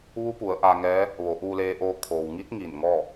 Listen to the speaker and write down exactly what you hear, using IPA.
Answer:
ʋ u˧˥ p u˩˧ ə̯ ʔ a˧ ŋ ɛː˧˥ | ʋ o˩˧ ʔ uː˧ l eː˧ ʔ oː˧ kʰ oː˩ w ŋ i˧˥ t̚ ŋ i˧˩ n ŋ ɔː˥˨

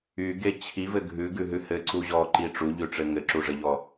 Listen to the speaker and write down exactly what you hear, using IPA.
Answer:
y ɡ e t͡ɕʰ i v ɘ ɡʱ ʉ ɡ ʉ ɦ ʉ h ɘ ǀ u ʑ ɔ ǃ i ʈ͡ʂ u ʎ ʉ ʈ͡ʂ ɘ ŋ ɘ ǁ u ʐ ɘ ʎ ɔ

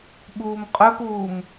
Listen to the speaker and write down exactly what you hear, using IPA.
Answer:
ɓ uː m qʼ œ p uː m

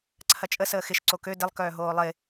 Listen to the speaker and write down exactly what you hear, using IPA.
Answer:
ǀʰ ɐ t͡ʃʼ ə s əː x ɪ ʃ ǀ o k ø d ɪ lˠ k œː ɦ oː lˠ ɪ

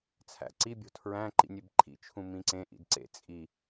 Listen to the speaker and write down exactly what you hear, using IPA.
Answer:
t͡sʰ æ̰ ǀ i bʲ o̤ tʰ ɹ æ̃ ǃ ḭ nʲ e b ǃʰ ḭ t͡ʃʰ ũ m ĩ ǀ ẽ ʔ ḭ d ǀ ḛ t͡sʼ i

